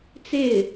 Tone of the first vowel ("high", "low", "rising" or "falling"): falling